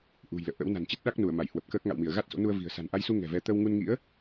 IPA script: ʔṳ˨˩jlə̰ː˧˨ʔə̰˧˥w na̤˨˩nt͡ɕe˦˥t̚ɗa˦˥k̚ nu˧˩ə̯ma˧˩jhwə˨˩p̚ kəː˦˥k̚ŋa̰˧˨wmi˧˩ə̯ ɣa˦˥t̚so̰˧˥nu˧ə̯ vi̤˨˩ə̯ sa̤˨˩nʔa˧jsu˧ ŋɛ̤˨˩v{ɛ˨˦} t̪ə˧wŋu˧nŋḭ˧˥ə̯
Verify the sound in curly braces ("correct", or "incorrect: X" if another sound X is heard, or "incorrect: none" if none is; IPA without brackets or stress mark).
correct